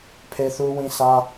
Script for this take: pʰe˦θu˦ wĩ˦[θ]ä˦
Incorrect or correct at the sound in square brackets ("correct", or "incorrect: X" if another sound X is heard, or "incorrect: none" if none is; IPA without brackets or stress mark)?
incorrect: s